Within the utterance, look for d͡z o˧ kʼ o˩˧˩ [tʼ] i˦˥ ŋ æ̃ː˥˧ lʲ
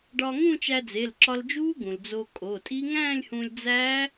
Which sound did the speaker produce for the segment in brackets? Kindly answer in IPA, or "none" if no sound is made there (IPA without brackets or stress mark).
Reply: tʼ